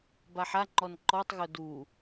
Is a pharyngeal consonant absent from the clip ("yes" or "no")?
no